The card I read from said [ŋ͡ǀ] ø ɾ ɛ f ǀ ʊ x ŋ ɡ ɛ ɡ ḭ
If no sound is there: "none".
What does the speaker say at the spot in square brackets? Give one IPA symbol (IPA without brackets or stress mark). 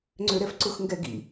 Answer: ŋ͡ǀ